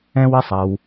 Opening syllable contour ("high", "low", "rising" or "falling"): high